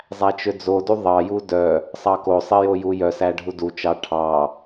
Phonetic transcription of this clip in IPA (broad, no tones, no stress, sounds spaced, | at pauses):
zˤ æ t͡ʃ ø d͡z o d u ðˤ ɑ j u d œ | sˤ ɑ k o sˤ i j o j u j œ s æ ɖʱ u d u t͡ʃ ɑ ʈʰ ɑ